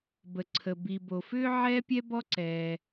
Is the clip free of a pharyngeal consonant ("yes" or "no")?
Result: no